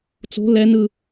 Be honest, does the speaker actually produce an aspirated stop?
no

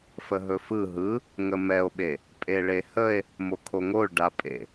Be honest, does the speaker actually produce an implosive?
yes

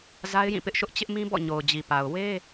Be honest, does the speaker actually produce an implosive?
no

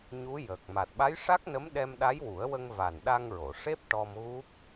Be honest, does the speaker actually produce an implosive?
yes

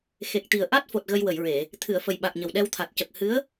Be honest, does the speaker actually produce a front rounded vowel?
no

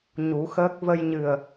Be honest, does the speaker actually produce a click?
no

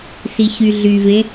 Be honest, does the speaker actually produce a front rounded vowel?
yes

